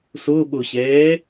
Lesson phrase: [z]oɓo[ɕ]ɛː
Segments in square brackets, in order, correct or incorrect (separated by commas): incorrect, correct